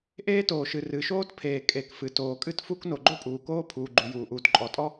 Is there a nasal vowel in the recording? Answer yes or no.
no